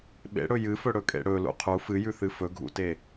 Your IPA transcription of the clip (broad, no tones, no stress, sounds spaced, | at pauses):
ɓ ḛ ɽ ɵ j ɨ f ɵ ɽ ɵ kʼ ḛ ɽ ɵ l ṵ qʰ u f ɨ j ʉ θ ɨ f ɵ ɡʱ ṵ t e